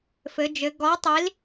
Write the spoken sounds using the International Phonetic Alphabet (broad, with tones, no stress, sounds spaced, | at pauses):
f ɘ˩˧ d͡ʒ ɘ˩˧ ɡ ɔ˨˥ tˤ i˨˥ l